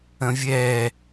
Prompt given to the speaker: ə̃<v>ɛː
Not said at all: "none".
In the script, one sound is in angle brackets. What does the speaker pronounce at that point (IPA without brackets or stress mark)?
vʲ